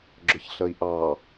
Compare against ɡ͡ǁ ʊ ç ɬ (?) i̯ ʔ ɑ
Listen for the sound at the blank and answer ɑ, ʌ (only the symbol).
ʌ